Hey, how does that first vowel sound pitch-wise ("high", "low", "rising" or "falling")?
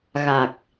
low